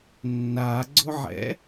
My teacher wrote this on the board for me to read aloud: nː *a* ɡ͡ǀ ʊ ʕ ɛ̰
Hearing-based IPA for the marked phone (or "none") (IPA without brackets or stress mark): a